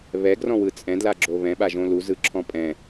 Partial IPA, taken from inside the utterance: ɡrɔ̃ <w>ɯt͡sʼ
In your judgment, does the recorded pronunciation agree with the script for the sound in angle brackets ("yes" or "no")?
yes